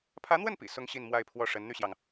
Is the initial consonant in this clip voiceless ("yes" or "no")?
yes